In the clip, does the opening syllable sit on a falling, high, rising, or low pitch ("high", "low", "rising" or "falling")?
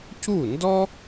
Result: falling